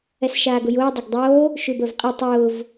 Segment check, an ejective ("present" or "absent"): present